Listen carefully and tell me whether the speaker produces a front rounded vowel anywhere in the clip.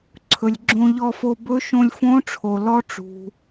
no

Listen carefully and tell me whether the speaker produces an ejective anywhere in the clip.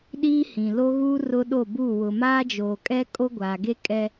yes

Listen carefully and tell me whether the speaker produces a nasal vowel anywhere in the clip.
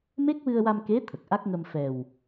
no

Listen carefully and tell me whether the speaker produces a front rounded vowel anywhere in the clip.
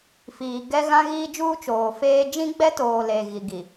no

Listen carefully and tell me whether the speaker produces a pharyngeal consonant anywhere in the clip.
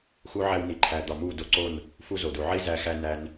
yes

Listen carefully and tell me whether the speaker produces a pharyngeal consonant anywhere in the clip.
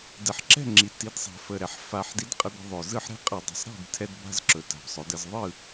yes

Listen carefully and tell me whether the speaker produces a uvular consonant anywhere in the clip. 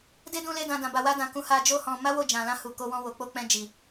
no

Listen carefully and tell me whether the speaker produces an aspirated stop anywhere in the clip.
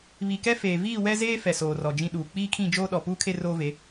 yes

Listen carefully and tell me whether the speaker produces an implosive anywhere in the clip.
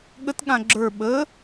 yes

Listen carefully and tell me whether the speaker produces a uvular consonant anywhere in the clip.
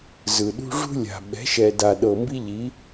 no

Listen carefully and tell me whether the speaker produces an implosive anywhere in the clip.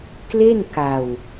no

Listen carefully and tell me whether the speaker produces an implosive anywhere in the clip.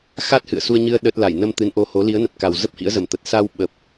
yes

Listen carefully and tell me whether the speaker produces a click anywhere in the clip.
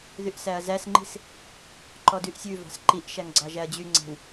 yes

